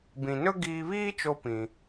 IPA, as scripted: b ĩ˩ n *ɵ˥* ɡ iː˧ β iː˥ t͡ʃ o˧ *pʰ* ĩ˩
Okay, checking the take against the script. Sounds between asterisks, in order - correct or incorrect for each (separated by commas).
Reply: correct, incorrect